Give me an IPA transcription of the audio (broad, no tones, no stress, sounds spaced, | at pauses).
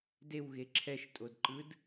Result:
d e w ɣ e ǁʰ ɛ ʃ tʼ o d ǃ ɯ d